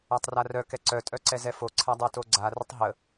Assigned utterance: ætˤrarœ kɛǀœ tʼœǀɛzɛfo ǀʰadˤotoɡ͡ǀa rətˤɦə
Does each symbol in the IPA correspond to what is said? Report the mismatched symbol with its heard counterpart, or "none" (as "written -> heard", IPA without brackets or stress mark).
none